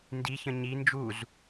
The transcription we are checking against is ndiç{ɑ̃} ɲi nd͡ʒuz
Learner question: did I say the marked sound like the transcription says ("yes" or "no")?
no